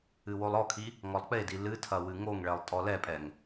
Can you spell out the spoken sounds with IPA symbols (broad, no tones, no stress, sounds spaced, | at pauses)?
ɨ w o lˠ ɔ kʰ i | ŋ ɔ lˠ k͡p e d i l ɨ tʰ ɐ w ɨ ŋ o ŋ ɭ ɛ lˠ tʼ ɔ l ɛ pʼ ɛ ŋ